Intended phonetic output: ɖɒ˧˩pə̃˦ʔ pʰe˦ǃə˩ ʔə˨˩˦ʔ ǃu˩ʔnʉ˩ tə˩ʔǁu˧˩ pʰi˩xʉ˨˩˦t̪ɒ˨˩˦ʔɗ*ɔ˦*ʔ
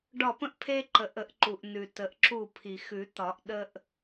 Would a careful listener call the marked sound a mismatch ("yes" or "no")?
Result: yes